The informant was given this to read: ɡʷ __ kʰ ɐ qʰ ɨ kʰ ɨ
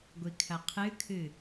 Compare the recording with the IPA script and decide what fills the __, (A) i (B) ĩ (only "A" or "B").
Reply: A